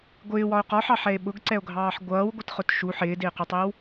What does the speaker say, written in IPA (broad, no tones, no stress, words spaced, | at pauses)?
ɡʷɪːwɒo̯ qɒħɑħɛe̯ ɓʊɡǀɛo̯ɡʱɑːħ ɡʷʌːwɡʷɪtχʊt ʃu ħɪːdɪːqutˤɪːw